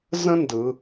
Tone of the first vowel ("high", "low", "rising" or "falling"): high